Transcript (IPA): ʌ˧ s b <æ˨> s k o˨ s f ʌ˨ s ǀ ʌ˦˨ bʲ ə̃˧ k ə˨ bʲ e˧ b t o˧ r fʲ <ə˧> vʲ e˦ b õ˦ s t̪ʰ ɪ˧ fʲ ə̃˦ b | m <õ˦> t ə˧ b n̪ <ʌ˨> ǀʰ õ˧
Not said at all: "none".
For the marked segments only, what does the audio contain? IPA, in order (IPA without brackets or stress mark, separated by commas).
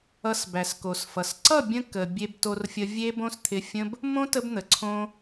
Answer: æ˨, ə˧, õ˦, ə˨